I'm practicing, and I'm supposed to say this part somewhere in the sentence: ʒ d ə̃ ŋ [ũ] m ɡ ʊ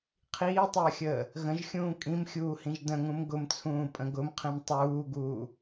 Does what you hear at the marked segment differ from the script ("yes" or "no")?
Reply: no